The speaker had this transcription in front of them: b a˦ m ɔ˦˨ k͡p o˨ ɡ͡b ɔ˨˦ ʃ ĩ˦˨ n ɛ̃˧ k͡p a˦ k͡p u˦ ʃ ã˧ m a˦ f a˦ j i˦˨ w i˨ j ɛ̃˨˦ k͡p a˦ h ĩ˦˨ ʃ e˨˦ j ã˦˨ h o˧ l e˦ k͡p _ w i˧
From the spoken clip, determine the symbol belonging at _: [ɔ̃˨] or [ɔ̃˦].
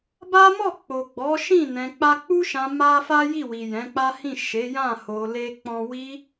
ɔ̃˦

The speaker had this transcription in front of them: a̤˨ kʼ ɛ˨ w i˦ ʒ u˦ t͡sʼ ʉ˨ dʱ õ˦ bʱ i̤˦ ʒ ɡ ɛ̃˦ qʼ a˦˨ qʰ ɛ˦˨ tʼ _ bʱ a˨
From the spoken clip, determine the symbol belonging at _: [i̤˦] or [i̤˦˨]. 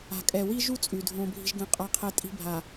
i̤˦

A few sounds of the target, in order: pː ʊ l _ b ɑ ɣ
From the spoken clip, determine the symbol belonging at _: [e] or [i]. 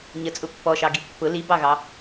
i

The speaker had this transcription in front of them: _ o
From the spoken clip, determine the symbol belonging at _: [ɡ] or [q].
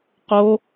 q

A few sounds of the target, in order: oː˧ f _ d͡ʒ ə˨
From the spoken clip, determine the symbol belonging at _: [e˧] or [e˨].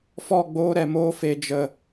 e˨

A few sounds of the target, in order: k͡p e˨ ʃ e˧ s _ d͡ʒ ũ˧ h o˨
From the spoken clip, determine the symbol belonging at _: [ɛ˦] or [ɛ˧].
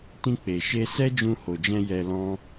ɛ˦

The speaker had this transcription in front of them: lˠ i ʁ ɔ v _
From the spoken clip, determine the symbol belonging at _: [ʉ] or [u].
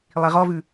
ʉ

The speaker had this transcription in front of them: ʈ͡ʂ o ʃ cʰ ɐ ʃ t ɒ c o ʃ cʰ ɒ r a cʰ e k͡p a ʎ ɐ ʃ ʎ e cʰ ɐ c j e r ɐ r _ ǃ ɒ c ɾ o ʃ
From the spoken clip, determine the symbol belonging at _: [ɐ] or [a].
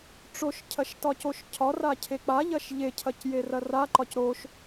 a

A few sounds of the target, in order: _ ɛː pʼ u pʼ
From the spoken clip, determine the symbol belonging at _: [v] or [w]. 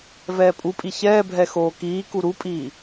v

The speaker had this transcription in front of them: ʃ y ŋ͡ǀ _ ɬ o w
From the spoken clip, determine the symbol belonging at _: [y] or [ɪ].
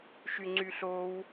y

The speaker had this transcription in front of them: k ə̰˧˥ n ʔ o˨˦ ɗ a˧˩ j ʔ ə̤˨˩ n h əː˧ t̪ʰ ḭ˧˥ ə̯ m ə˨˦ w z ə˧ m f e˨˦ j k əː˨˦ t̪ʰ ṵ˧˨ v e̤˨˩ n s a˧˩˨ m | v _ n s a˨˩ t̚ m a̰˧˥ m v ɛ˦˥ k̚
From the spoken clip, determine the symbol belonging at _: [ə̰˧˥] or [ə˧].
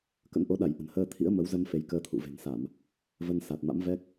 ə˧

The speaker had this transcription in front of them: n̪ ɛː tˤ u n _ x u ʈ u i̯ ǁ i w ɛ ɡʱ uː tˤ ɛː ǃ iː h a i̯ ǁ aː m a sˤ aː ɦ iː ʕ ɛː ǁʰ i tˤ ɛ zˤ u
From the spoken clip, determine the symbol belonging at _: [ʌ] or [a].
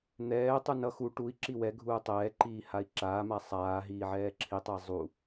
ʌ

